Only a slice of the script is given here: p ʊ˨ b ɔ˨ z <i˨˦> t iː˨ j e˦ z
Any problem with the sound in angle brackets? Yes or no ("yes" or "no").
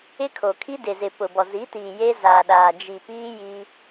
no